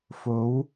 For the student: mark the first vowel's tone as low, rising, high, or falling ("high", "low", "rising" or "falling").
rising